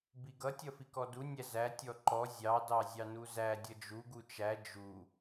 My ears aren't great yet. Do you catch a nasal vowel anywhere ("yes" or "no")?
no